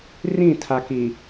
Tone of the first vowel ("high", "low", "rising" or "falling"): falling